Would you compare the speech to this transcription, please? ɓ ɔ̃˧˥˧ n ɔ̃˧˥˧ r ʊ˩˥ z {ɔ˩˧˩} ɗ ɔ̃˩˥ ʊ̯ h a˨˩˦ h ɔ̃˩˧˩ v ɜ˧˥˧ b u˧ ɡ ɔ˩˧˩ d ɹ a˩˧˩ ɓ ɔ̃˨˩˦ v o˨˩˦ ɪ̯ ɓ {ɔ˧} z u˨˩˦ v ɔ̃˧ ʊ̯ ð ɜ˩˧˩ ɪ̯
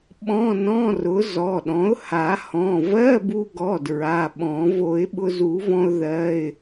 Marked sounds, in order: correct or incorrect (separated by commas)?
correct, incorrect